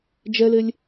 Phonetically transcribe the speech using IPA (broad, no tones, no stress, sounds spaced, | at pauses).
d͡ʒ ɛ l e lʲ